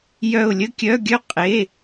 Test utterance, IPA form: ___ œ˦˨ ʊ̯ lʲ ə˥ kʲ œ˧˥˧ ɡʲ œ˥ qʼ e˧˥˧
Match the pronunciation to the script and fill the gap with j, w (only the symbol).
j